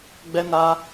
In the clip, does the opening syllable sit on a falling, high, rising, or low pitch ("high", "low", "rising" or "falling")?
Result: high